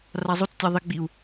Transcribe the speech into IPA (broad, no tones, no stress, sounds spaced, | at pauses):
r a zˤ o t͡s tʲ a ðˤ e ɡ͡b i u̯